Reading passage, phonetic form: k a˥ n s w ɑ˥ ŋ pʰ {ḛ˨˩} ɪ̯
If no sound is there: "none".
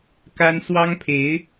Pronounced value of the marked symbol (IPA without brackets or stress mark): e˧˥